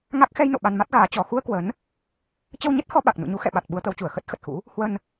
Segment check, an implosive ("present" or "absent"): present